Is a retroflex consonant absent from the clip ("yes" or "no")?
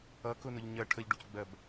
no